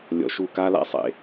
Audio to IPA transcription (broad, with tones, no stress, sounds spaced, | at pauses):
lʲ ɔ̰˧ ʃ u˦˨ k a˦ l a̰˦ sˤ ḛ˧